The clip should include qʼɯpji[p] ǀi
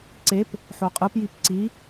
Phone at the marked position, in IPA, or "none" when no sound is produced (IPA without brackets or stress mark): p